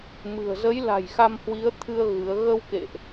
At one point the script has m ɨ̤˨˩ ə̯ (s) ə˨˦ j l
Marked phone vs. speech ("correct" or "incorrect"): incorrect